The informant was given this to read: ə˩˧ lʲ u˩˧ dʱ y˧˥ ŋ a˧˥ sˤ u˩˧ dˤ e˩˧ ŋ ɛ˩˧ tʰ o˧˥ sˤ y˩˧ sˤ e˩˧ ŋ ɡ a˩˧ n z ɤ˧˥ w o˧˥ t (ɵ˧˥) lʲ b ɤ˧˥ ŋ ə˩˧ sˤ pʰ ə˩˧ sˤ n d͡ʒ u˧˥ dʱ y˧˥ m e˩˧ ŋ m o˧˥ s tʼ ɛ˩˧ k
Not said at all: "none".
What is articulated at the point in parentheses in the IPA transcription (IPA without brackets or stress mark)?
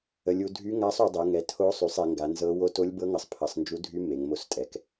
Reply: o˧˥